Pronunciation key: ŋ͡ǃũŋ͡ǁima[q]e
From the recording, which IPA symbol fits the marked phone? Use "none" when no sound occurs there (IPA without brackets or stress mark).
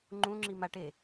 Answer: ʈ